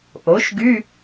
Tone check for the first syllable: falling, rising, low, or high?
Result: rising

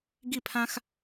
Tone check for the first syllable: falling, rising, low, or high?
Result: falling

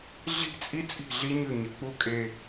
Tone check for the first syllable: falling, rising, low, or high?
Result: falling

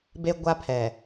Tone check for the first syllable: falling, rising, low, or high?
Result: high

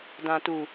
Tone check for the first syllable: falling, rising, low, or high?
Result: low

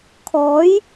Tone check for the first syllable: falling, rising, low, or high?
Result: rising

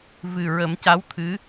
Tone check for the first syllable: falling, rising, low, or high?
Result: low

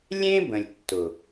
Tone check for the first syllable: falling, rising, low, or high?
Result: high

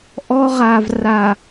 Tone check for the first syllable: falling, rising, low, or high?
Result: high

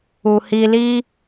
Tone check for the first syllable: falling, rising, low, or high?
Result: low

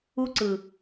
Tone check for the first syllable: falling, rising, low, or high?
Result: high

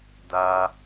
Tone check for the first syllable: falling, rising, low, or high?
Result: low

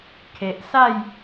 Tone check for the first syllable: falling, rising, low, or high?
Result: low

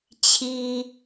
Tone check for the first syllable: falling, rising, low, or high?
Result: low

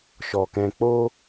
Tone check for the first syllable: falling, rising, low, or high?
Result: low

